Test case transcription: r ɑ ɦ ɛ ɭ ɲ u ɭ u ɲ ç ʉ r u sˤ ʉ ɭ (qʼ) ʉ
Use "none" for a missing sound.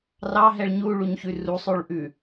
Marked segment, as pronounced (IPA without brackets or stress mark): ʔ